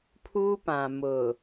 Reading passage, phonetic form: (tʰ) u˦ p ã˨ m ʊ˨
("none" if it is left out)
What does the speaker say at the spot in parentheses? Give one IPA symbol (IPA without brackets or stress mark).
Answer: pʰ